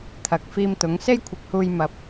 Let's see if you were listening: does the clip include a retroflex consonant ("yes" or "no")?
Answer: no